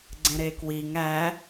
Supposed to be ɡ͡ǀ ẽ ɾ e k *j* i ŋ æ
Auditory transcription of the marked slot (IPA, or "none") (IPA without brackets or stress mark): w